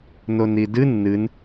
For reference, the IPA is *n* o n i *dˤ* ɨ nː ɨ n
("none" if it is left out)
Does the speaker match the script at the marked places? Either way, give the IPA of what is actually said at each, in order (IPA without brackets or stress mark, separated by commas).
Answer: n, d